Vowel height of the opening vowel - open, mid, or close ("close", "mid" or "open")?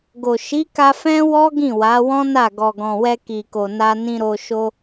mid